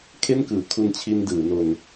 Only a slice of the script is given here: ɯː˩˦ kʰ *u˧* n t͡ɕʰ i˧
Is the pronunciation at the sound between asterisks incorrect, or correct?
correct